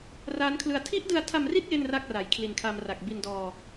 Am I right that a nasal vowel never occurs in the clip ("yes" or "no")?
yes